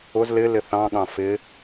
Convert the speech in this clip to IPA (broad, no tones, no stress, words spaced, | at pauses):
ʊz lɪ lɪθɑ̃ɠɑ̃ fɪ